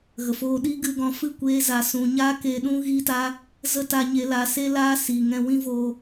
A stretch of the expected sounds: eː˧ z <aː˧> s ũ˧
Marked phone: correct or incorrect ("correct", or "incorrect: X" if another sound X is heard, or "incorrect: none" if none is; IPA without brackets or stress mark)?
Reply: incorrect: a˧